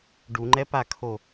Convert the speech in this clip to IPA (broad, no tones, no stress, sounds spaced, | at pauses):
ɖ u ŋ͡ǃ ɛ p a kʰ o